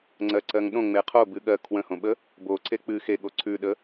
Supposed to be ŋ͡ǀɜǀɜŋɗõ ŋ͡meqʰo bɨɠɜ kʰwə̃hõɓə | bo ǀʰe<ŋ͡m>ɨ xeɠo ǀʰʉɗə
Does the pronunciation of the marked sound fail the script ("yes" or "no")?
yes